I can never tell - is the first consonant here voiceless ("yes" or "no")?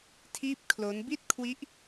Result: yes